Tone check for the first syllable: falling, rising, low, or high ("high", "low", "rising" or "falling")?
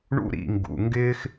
high